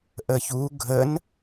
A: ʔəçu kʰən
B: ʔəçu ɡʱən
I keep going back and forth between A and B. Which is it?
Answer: B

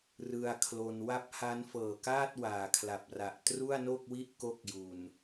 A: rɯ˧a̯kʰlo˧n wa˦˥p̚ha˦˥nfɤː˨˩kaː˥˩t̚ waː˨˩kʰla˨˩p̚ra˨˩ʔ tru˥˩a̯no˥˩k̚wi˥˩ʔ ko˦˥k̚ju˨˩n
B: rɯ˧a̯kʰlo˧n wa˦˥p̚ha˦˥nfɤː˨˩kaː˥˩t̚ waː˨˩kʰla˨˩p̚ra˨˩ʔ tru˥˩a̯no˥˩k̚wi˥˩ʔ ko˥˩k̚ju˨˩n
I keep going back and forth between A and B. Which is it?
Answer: B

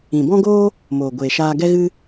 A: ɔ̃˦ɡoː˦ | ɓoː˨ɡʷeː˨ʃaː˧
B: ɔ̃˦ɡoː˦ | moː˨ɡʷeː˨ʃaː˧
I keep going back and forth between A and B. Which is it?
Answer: B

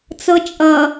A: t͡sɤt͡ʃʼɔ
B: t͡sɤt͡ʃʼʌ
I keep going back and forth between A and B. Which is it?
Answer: B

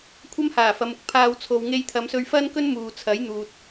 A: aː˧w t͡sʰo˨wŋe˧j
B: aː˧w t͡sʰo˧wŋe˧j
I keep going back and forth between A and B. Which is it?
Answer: A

